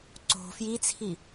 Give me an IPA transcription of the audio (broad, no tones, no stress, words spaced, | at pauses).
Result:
ǀo̤ fjit͡sʰi